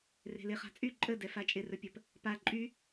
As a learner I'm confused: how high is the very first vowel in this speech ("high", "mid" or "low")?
mid